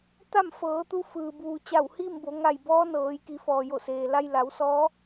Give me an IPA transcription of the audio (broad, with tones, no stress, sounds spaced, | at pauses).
t̪ a˥˨ m f ɤː˩˧ t̪ u˧ f ɯː˩ b uː˩ t͡ɕ a˧˩ w h iː˥˨ m b o˩˧ ŋ a˧˩ j b ɔː˧˥ n ɤː˩˧ j k i˩˧ f ɔː˩ j o˧˩ s eː˩ l a˧ j l a˩˧ w s ɔː˧˥